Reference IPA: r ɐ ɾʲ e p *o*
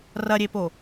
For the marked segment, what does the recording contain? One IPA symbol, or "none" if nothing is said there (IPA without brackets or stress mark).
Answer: o